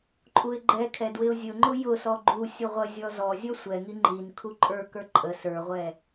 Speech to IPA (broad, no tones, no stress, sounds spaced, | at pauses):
ǃʼ u ɪ̯ ɡ͡ǃ ɛ kʰ ɛ d w ɪ ʊ̯ zʲ ʊ ŋ͡ǃ ʊ j ʊ s ɔ ɡ͡ǃ u sʲ ʊ ʁʷ ə zʲ ɔ z ɔ zʲ ʌ sʷ ɛ ŋ i ŋ͡ǃ i n kʰ u ǃʼ ə˞ k ə˞ ǃʼ ə s ə˞ ʁʷ ɛ